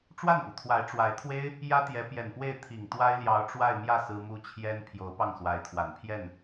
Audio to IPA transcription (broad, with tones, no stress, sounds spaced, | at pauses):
ʈ͡ʂ w a˥˩ n p u˩ t̪ʰ w a˧˥ ɪ̯ ʈ͡ʂ w a˧˥ ɪ̯ t̪ʰ w e˥ ɪ̯ | j ä˥ t̪ j ɛ˧˥ p j ɛ˨˩ n p w e˥˩ ɪ̯ t̪ʰ i˨˩ ŋ t̪ w a˥ ɪ̯ l j ɑ˧˥ ʊ̯ ʈ͡ʂ w a˥˧ ɪ̯ m j ä˥˩ s ɹ̩˥ m u˥ t͡ɕʰ j ɛ˥ n pʰ j o˧˥ ʊ̯ p ɑ˥˩ ŋ s w a˧˥ ɪ̯ t̪ʰ w a˨˩ n pʰ j ɛ˥˩ n